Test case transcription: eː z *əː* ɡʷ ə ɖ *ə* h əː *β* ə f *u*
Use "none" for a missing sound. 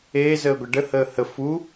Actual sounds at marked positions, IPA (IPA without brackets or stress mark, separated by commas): əː, ə, h, u